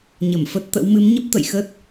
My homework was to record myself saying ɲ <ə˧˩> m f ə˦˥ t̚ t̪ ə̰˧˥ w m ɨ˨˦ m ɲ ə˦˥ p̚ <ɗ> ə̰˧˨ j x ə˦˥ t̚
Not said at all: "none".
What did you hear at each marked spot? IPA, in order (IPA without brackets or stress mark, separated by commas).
ə˧˩, t̪